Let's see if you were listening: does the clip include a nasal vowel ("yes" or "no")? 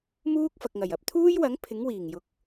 no